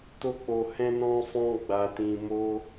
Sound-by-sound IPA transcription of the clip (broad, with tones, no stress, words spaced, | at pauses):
to˦k͡po˧ hɛ̃˦nɔ̃˦fɔ̃˦ ɡ͡ba˧tĩ˧mo˦